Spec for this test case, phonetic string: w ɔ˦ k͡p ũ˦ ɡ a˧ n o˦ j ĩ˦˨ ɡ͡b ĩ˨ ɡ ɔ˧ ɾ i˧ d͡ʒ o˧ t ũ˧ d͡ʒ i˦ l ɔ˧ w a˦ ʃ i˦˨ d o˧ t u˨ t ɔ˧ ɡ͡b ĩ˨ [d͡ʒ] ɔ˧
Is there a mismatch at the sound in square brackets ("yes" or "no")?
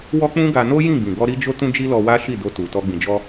no